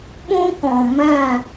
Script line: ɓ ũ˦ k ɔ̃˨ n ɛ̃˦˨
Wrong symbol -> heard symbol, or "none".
n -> m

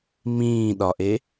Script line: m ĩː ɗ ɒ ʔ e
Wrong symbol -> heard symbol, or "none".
none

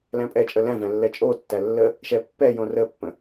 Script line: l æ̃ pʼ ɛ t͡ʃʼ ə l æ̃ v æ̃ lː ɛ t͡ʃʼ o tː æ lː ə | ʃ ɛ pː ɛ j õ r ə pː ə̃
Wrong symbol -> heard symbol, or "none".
none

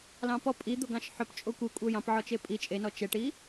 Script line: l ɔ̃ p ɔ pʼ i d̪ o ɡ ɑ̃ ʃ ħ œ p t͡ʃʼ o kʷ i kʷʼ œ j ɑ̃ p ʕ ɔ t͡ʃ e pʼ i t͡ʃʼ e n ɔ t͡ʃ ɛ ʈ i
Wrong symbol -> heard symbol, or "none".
ɔ̃ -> ɑ̃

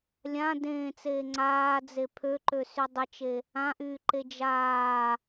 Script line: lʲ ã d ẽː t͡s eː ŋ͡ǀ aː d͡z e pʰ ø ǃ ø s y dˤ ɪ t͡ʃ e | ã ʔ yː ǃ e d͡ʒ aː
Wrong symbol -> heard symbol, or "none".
none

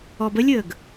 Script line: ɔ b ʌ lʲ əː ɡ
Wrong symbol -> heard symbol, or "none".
ʌ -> ə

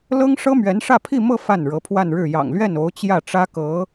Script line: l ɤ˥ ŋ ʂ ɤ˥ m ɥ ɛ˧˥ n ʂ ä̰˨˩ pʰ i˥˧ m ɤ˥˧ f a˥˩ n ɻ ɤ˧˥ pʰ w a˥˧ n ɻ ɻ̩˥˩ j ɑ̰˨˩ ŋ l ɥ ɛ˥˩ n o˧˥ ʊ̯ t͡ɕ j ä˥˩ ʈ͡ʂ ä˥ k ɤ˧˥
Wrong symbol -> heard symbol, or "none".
ä̰˨˩ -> ä˥˧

